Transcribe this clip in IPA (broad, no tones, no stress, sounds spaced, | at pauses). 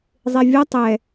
zˤ e vʲ ɐ tˤ ɛ